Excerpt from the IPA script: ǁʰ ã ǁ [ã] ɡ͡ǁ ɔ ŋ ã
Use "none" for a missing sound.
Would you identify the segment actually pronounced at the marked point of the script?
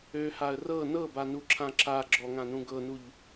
a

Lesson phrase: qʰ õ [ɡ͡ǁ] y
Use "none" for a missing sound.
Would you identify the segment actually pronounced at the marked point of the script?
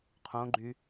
ɡ͡ǃ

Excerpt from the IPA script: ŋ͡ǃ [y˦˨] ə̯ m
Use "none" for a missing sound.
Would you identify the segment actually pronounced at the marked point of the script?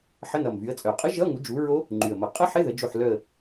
y˨˩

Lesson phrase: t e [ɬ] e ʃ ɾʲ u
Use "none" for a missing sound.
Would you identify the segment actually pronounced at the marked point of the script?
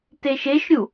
ʃ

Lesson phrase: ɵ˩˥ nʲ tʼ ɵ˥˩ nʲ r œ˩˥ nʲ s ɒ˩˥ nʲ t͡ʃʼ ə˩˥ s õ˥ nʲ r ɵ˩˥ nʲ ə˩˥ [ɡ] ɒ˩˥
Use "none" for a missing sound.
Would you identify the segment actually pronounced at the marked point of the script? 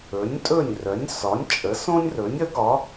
ɡ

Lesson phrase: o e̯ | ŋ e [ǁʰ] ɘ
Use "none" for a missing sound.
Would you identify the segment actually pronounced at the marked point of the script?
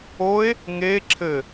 ǁʰ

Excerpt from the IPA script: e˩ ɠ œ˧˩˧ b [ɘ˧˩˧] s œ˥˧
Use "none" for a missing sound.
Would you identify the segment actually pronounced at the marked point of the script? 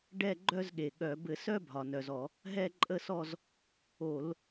ɘ˧˩˧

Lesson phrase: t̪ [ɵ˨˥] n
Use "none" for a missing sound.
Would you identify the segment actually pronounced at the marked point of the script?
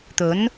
ɵ˨˥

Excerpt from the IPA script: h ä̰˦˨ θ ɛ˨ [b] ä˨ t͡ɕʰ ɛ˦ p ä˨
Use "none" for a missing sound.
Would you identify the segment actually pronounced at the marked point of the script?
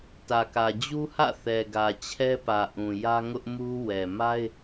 ɡ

